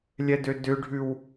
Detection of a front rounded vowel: present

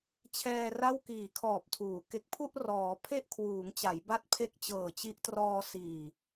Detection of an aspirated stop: present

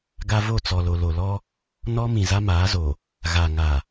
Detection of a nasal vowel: present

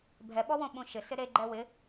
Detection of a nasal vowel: present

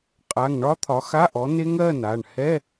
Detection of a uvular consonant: present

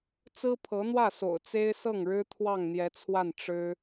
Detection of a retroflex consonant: present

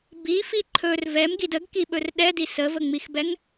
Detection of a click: present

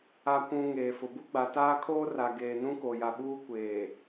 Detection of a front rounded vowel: absent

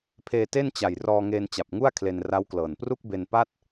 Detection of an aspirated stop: present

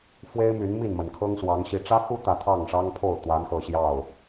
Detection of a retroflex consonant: present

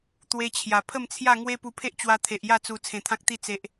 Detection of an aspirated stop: present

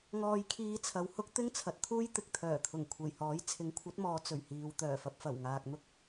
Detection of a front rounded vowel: present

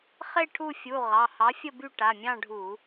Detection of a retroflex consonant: present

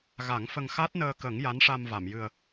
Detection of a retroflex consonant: present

